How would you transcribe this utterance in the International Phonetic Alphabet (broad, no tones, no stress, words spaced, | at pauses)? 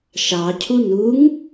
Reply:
ʃɑcʰu nuŋ